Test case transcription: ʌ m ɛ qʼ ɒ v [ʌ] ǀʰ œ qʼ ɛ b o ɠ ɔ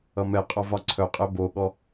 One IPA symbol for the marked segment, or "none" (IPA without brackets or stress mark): ɒ